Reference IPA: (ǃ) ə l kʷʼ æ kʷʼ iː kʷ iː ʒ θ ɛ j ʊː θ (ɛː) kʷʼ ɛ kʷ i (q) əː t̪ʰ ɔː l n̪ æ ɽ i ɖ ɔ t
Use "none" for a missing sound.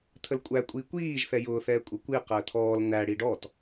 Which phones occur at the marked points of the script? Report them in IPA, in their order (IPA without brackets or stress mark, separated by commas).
t̪ʰ, ɛː, q